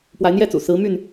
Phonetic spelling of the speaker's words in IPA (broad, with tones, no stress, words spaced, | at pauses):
pwa˨˦ɪ̯n̪jɛ˦t͡sṵ˨˩ sɹ̩˨˦my˥˨n